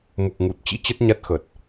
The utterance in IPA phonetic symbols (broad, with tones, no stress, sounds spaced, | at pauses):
m u˨˩ k̚ ŋ u˨˩ t̚ t͡ɕ ḭ˧˥ t͡ɕ ə˦˥ t̚ ɲ a˦˥ t̚ x ə˨˩ t̚